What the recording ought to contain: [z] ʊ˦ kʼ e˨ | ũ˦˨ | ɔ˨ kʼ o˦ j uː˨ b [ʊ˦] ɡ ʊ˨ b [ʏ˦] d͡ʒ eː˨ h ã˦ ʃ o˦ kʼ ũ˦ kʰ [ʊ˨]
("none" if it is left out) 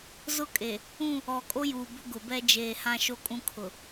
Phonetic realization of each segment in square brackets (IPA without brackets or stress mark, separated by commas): z, ʊ˦, ɛ˦, ʊ˨